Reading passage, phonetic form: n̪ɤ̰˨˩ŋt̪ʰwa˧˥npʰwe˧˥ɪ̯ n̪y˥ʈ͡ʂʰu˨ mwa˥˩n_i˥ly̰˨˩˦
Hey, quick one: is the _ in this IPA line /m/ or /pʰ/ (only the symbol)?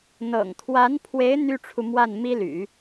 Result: m